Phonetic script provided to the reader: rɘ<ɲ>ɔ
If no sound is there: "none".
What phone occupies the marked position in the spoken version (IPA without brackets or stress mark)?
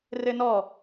n